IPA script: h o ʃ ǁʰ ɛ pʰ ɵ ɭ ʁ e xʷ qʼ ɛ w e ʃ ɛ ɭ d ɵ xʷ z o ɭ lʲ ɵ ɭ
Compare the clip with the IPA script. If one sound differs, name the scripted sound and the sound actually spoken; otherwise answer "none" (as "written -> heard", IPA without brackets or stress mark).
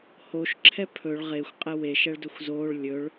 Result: none